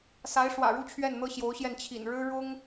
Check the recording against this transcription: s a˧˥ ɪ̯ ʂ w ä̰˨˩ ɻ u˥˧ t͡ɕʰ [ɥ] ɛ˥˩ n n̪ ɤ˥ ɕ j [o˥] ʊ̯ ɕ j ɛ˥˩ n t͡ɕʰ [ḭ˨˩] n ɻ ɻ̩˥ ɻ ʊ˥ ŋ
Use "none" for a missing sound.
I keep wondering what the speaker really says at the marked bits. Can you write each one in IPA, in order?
ɥ, o˧˥, ḭ˨˩

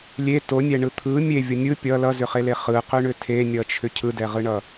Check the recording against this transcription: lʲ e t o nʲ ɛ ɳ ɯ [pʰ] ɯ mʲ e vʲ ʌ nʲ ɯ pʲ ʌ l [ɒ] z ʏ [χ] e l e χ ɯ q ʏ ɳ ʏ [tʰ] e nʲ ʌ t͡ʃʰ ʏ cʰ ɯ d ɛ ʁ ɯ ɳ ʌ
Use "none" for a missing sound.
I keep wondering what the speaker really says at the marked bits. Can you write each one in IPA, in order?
t̪ʰ, ʌ, χ, tʰ

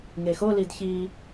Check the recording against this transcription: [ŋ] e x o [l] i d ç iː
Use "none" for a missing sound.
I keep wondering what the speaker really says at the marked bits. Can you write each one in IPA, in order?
ŋ, l

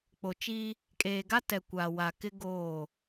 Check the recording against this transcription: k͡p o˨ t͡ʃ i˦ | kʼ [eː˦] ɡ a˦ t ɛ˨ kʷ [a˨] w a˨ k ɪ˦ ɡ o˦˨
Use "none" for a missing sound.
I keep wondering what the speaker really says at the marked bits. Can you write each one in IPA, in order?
eː˨, a˨

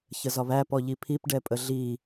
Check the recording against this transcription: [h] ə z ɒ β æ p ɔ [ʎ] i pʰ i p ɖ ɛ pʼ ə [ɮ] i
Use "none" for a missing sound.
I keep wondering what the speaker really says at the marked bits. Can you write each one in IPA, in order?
ç, ʎ, ɮ

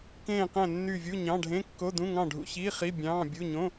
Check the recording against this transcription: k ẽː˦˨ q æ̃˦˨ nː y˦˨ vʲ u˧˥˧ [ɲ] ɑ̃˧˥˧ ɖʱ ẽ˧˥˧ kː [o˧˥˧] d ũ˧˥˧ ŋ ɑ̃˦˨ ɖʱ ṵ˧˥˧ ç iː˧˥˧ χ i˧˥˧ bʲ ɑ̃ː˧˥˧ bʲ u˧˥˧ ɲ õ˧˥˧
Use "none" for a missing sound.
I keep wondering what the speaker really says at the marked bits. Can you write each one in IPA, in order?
ɲ, o˧˥˧

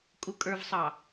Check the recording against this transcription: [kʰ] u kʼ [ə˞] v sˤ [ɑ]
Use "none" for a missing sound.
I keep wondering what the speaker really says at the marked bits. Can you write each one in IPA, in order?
kʼ, ə˞, ɑ

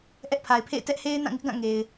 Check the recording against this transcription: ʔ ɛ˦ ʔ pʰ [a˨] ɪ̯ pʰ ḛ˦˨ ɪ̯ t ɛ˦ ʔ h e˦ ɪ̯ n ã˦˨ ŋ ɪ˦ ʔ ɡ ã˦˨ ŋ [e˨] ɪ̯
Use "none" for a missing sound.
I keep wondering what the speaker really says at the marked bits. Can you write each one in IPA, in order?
a˨, e˨

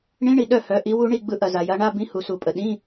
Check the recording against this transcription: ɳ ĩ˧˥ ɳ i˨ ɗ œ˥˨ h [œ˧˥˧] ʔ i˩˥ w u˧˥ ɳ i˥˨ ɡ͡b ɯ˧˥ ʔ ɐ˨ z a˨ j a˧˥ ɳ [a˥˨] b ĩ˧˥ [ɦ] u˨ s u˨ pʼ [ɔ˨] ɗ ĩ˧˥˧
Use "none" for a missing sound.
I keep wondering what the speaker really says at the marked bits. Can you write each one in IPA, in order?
œ˩˥, a˧˥˧, h, ə˨

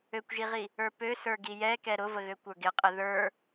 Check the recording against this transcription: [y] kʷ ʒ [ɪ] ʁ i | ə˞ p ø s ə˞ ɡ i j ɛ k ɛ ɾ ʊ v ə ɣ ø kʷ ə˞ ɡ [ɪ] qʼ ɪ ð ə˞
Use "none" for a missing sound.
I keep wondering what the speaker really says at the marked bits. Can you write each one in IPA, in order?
ø, i, ɪ

